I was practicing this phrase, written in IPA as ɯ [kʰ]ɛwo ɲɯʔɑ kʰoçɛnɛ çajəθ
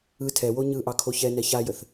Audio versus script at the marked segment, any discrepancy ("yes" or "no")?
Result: yes